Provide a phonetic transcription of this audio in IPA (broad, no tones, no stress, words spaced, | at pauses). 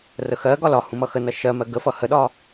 rəxɜɡɒ lɒ hũmʌxənʌ ʃɜmɜ ɡəfʌ həɗɒ